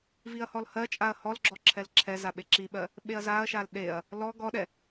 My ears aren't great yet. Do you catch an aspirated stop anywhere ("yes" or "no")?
yes